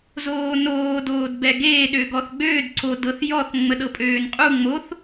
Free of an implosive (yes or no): no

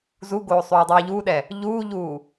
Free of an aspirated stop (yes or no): yes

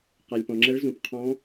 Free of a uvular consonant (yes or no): no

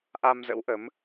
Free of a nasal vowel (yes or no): yes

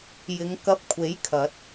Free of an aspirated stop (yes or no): no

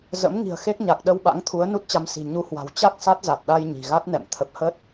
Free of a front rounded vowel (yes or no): yes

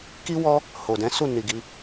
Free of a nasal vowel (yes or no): no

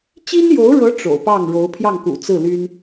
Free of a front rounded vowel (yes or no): no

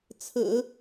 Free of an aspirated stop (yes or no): no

